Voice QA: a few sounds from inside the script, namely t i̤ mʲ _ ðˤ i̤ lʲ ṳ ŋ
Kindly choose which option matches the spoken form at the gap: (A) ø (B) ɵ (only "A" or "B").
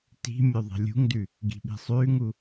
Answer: B